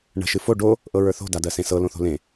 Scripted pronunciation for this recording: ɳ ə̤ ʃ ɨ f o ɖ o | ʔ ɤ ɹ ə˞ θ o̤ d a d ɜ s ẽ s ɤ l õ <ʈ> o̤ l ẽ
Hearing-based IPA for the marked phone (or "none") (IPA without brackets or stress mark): θ